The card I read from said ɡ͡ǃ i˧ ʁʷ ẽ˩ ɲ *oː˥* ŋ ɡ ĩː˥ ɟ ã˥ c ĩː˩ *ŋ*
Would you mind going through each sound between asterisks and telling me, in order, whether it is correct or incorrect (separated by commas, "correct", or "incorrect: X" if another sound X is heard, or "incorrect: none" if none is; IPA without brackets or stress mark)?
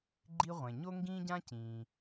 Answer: incorrect: o˥, incorrect: none